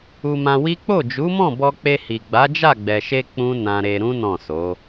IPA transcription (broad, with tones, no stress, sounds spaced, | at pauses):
u˧ m ã˧ w i˦ k͡p o˦˨ d͡ʒ u˨˦ m ɔ̃˦˨ b ɔ˧ k͡p e˧ h i˨ ɡ͡b a˨˦ d͡ʒ a˦˨ ɡ͡b ɛ˨ ʃ e˧ k͡p ũ˦ n ã˧ ɾ e˧ ɾ ũ˦ n ɔ̃˦˨ s o˨˦